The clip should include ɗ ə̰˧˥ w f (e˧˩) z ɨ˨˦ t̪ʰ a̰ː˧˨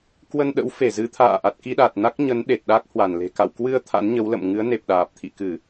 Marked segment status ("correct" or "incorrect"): correct